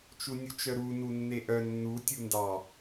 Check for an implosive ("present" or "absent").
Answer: absent